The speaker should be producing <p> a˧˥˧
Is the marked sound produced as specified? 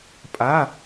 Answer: no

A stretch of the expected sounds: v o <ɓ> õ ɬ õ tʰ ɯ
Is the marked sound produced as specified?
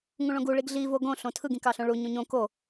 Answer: no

